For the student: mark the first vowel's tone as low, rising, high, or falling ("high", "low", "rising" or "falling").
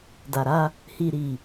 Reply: low